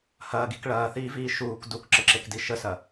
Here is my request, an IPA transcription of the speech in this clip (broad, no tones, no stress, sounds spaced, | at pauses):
h ɐː ɡ i k ɭ ɐː θ iː v iː ʃ uː k d u k ǁ ə ǁ e k d i ʃ ə s ɐ